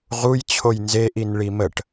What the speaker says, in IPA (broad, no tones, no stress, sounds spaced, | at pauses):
ʁ u j t͡ɕʰ o j n z e ʔ i n ɭ i m ə ʈ